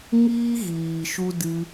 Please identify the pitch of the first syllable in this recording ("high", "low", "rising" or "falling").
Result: high